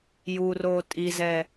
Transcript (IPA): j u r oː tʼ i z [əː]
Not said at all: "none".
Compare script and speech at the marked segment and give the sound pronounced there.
ɛː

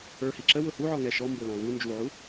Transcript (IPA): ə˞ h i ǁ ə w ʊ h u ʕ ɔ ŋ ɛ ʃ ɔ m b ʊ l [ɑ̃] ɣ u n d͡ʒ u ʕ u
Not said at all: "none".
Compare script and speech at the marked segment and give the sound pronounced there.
ɑ̃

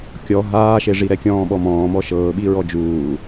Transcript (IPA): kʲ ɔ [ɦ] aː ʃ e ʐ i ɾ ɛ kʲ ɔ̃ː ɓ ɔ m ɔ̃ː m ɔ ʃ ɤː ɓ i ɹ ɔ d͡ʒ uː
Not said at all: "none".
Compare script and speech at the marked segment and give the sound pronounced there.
ɦ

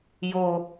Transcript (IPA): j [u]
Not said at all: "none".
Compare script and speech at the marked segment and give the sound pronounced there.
o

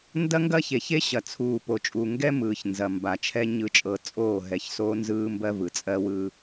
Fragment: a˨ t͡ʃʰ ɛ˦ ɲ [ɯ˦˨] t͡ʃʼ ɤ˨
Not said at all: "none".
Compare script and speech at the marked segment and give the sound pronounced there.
ɯ˨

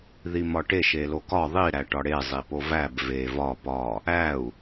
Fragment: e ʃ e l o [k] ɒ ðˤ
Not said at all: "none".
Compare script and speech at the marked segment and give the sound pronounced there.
k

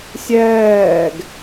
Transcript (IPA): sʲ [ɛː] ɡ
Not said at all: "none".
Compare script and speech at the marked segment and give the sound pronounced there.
ɛː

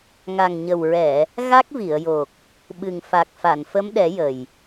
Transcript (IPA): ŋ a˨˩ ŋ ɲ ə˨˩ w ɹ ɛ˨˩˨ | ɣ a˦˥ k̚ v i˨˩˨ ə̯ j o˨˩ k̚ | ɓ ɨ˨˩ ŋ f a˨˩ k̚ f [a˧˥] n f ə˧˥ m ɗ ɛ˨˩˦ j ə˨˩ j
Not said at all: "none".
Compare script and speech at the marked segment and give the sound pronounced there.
a˨˩˨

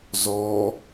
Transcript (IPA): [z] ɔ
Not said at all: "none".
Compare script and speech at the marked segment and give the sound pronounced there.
z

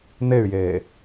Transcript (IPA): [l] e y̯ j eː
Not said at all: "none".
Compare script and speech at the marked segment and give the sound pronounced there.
n̪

